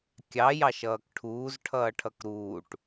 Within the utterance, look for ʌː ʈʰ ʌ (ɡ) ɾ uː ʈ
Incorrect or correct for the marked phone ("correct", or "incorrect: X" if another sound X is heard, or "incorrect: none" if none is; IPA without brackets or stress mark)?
incorrect: k